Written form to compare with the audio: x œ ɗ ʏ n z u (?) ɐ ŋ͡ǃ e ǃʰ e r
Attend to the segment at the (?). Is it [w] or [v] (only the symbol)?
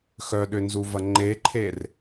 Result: v